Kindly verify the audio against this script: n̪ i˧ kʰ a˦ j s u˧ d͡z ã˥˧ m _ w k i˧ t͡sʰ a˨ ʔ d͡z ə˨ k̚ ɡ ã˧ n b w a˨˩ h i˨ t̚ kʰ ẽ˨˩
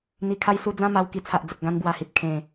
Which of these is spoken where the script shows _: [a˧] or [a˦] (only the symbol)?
a˧